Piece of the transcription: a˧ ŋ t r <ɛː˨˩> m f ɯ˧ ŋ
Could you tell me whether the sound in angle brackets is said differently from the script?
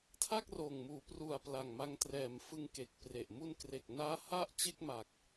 no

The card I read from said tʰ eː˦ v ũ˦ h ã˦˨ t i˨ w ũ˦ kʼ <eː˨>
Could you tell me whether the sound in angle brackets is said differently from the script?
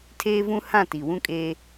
yes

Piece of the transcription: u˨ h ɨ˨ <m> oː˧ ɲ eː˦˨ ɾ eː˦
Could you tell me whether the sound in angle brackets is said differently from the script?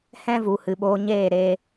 yes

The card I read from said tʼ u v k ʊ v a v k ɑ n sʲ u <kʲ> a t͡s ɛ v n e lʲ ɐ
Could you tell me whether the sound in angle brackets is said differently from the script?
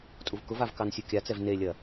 no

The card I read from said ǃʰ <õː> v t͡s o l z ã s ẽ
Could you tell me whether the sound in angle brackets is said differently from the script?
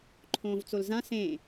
no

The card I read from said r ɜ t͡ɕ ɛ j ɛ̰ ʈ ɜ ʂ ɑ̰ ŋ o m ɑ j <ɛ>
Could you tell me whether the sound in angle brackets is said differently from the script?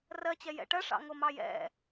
yes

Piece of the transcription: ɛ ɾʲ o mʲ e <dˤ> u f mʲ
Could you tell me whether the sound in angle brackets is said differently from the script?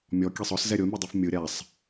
no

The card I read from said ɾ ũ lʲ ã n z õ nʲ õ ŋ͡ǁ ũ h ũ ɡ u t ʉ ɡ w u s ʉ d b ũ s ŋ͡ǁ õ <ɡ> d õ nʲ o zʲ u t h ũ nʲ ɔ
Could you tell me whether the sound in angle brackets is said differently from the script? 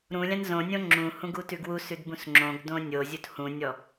no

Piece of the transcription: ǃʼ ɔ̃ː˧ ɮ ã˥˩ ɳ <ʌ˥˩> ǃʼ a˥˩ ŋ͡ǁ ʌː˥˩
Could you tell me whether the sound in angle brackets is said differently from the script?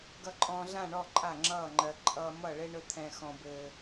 yes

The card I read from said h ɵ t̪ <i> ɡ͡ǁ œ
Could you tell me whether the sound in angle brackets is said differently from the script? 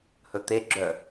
yes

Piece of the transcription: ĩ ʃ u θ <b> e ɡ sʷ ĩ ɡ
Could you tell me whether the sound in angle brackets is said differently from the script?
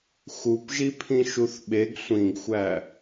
yes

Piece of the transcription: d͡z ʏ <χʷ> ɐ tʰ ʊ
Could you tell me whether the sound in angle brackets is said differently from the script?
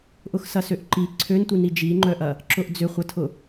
no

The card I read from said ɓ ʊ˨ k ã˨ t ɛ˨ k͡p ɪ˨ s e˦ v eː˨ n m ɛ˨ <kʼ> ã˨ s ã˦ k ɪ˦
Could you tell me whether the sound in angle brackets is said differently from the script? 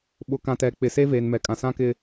no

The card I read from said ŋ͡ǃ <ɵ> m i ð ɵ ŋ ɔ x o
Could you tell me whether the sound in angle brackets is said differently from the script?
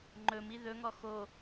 no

